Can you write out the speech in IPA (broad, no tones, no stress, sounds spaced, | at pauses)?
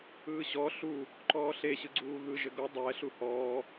ɯː ɕ ɔ ɬ u | ǃ ɔː ɬ e ɕ ɯ ɡ͡ǀ uː ɣ ɯ ʒ ɘ ɡ o dˤ ɛ ɬ u h ɔː